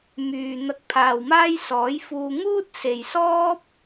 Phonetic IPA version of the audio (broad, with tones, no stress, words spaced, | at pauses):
myː˨ n̪ɐ˧k̚pʰaː˨wmaː˥j sɔː˨˥jfuː˧ ŋuː˥t̚se˨jsɔː˥p̚